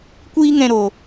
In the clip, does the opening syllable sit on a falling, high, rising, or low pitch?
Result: high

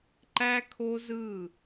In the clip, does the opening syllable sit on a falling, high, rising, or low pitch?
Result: high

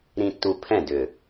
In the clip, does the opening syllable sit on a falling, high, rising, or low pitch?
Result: low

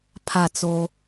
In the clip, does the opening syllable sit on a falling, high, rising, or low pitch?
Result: falling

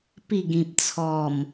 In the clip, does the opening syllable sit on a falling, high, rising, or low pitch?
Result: falling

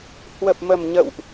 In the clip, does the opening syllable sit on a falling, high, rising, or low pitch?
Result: low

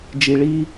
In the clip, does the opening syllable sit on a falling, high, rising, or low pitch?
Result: low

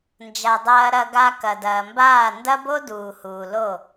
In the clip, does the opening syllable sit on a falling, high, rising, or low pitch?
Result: low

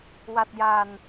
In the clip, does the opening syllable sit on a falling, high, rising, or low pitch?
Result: low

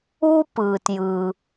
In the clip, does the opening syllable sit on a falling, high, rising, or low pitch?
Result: high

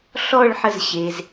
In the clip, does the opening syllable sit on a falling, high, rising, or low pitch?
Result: falling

